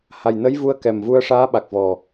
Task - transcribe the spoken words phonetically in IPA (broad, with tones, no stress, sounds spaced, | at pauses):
h a˨˩ j n ə˧˥ j v u˧ ə̯ k ɛ˨˩ m v u˧ ə̯ ʂ aː˧˥ ɓ a˨˩ k̚ v ɔ˨˩